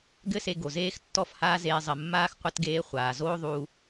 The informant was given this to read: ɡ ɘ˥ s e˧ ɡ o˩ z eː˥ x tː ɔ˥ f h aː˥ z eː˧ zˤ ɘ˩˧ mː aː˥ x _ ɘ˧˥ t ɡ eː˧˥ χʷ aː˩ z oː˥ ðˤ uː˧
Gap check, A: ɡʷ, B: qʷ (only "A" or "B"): B